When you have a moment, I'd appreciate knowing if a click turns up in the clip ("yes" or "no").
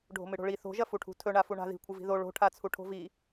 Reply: no